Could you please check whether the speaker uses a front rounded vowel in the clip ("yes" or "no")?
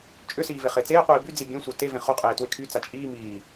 yes